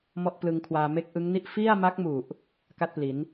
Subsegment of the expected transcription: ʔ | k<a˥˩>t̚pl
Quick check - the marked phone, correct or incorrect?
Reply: correct